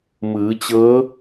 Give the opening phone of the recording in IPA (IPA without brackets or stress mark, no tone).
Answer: m